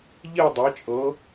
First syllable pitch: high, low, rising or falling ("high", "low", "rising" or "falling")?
falling